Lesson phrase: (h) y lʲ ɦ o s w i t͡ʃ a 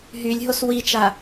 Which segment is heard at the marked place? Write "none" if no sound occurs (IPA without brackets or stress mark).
ɦ